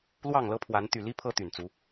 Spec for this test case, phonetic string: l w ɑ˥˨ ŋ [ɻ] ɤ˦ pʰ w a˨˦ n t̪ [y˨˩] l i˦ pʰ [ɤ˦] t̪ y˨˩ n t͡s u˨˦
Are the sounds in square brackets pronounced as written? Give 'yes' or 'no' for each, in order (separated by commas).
no, yes, yes